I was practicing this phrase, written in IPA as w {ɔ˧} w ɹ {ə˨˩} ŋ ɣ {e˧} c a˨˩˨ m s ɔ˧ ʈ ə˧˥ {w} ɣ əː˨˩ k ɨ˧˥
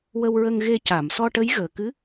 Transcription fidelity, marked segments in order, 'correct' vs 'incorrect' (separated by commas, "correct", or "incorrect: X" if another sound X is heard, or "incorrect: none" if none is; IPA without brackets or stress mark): incorrect: ə˧, incorrect: ə˧, correct, incorrect: j